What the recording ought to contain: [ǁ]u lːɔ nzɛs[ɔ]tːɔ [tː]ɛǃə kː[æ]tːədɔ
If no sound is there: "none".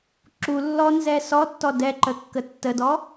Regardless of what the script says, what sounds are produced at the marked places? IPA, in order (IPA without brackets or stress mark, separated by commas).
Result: ǁ, ɔ, d, ə